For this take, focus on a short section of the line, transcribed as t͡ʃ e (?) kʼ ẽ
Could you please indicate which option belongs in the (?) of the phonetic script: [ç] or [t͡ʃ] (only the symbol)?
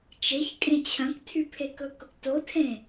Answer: ç